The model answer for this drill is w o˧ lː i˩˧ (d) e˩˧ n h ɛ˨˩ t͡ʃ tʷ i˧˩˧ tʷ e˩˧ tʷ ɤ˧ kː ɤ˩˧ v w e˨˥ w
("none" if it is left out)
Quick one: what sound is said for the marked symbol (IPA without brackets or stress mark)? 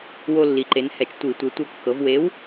ǃ